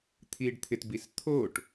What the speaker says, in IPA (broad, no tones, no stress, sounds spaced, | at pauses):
t̪ʰ iː ɖ t̪ʰ ɪ t b i s t̪ʰ o ʈ